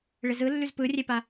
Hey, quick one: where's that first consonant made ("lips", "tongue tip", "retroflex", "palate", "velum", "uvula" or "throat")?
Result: retroflex